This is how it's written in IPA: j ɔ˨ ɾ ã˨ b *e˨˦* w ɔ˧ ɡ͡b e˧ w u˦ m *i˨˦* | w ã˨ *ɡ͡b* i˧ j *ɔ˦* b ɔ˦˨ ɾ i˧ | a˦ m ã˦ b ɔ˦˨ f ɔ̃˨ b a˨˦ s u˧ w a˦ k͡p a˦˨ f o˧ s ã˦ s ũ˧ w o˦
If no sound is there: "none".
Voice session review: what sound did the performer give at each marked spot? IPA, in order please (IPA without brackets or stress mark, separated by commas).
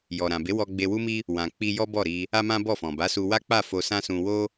e˨˦, i˦, k͡p, ɔ˦